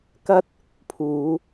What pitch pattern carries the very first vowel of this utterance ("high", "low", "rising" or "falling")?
high